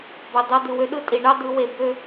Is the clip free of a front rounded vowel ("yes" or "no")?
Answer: no